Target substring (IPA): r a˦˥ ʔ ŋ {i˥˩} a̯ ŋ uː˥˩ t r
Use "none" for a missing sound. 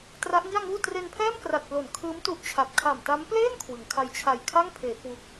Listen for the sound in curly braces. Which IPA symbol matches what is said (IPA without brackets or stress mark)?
i˥˩